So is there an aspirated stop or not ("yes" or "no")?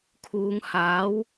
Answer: yes